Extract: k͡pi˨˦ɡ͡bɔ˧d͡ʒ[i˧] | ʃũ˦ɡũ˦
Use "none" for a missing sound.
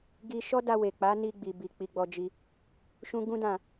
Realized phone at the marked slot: i˧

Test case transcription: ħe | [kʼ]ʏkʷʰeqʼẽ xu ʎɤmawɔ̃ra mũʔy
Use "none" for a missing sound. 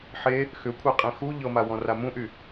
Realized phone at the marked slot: x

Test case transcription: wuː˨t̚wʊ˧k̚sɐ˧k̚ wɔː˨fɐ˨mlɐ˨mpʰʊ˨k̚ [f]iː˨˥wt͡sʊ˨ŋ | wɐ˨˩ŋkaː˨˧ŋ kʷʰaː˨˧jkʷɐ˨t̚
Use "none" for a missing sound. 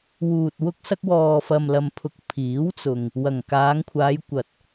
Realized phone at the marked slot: pʰ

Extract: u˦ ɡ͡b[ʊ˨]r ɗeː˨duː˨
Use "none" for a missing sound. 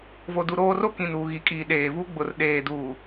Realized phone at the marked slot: ʊ˨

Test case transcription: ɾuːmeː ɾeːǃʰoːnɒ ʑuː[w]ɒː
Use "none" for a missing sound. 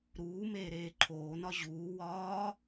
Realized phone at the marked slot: w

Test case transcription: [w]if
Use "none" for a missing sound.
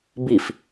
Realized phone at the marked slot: b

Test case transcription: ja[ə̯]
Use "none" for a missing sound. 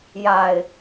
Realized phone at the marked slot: ɪ̯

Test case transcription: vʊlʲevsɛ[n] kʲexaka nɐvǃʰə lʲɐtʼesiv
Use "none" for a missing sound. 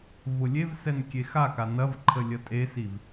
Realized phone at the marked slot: n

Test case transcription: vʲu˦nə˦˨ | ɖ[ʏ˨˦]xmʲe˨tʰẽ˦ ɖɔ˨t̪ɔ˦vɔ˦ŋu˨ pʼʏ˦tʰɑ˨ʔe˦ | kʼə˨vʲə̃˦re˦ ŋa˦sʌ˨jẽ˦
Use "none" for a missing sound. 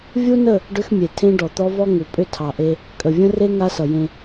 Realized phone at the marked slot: ʏ˦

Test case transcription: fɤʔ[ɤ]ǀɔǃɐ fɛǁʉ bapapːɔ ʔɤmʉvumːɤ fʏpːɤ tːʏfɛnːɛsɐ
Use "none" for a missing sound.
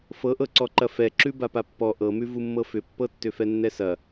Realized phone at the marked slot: ɤ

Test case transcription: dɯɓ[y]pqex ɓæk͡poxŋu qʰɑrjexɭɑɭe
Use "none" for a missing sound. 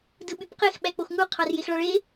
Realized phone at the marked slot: y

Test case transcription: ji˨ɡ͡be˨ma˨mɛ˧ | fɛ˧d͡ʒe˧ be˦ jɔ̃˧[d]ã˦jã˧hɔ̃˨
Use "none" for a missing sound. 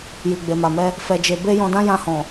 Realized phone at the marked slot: d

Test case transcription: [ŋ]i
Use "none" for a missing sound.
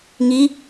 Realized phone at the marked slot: ŋ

